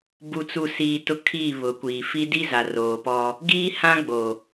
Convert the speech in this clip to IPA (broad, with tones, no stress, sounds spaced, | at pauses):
b u˨ t͡s u˨ s iː˨ t ʊ˦ kʰ iː˦˨ β ʊ˨ kʷ iː˨ f i˦ d i˦ z a˨ r oː˨ p ɔ˦ | ɡ iː˦ h ã˦ ɡ͡b o˨